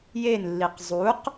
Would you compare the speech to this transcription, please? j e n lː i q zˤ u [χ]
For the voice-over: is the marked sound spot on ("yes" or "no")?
no